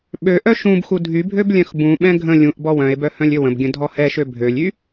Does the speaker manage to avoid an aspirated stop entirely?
yes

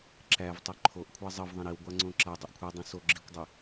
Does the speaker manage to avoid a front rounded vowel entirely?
no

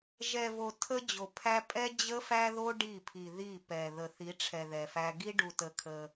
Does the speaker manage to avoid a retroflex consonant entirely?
no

